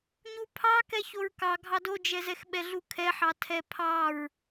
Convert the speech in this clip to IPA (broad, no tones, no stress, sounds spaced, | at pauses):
ɲ u pʰ ɑ k ɛ ç o ɹ k ɑ ɡʱ ɑ d o d͡ʒ ɛ z ɛ x ɓ ɛ ɮ u kʰ ɛ ħ ɑ tʰ ɛ pʰ ɑ ɹ